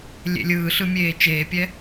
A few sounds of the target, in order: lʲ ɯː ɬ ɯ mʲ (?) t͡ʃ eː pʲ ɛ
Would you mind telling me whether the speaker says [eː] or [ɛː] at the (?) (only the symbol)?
eː